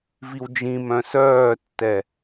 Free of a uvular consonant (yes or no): yes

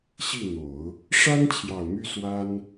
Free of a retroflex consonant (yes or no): no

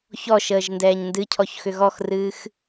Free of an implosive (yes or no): yes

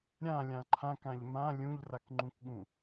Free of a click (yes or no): no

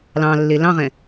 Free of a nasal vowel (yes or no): no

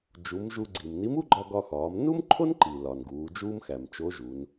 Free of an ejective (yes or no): yes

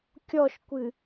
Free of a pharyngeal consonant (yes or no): yes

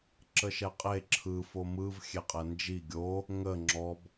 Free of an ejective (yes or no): no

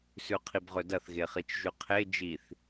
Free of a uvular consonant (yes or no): no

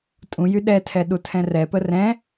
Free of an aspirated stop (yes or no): no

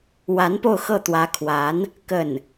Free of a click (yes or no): yes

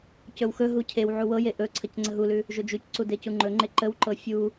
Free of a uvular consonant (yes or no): yes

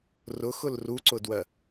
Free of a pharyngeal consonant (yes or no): yes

